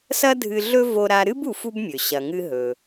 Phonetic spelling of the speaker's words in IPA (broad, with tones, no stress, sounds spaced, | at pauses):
s ɐ˥ dʱ ɨ˧ ɮ ɵ˥ v o˧ ɾ a˧ ɾ ɨ˥ b u˧ f u˥ b mʲ ɵ˩ ɕ ɐ˩ ŋ ɨ˧ ɦ ɵ˩